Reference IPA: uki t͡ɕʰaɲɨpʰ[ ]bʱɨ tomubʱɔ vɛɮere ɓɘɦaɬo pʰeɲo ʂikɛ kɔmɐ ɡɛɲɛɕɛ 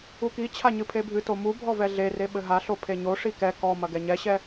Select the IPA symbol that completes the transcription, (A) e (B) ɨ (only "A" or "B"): A